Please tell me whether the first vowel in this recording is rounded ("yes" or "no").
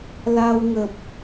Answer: no